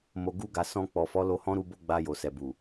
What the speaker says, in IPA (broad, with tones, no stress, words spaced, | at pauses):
mo˨ɡu˧ɡa˨sɔ̃˧ k͡pɔ˨ fɔ˨˦lo˧hɔ̃˦ɾu˧ bo˦ɡ͡ba˧ jo˨sɛ˨bu˨